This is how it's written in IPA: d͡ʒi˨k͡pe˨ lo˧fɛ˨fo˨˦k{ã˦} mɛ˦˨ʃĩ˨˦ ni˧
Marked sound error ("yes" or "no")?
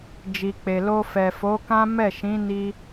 no